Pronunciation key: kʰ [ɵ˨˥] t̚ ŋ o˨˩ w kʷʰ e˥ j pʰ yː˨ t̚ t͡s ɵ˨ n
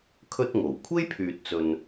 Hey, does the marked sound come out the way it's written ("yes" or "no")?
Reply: no